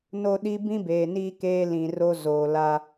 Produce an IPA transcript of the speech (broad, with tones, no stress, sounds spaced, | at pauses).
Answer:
n o˦ ɗ i˦ b ĩ˦ b eː˨ n iː˦ k eː˦ l ĩ˨ r o˦ z oː˨ l a˦